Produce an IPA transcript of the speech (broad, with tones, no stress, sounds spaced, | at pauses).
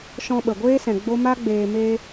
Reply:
ʃ ɔ̃˧ ɓ ə˨ ɡʷ eː˦ s ɛ̃˨ ɡ͡b o˦ m a˦ ɡ͡b eː˧ m eː˦